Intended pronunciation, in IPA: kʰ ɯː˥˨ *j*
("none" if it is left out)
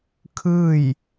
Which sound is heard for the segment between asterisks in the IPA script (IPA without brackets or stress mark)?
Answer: j